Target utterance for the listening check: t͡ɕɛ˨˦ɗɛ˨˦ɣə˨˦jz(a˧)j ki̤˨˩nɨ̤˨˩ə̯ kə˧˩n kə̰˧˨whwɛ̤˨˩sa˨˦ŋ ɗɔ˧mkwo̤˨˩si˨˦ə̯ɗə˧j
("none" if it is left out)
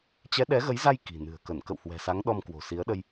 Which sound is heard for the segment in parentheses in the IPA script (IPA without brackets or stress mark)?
a˧